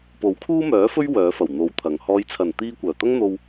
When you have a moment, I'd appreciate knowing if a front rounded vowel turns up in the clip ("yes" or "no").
yes